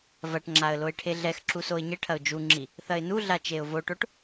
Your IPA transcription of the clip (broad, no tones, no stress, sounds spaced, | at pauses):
v ɐ ʈ ŋ͡ǁ a ə̯ l o ɪ̯ ʈʰ e ɮ ɛ x ǁ u s o ɪ̯ ɲ ɘ ʈʰ ɐ ʊ̯ d͡ʒ u ŋ͡ǁ i | θ ɐ ɪ̯ n u ɮ a t͡ʃ e ʊ̯ v o ʈ o ʈ